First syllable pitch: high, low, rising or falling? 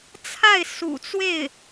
falling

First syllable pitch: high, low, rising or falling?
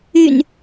low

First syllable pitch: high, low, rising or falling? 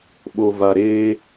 low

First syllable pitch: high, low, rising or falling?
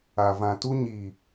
low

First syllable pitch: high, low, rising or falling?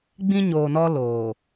high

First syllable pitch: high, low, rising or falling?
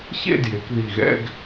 falling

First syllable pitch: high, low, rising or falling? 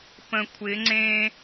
low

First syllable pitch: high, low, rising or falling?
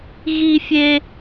high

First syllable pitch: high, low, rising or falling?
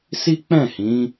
high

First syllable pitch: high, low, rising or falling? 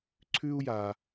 high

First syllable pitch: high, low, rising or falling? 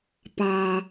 low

